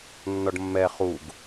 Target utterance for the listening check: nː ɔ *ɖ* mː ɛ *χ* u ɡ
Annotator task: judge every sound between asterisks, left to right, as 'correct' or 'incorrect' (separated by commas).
correct, correct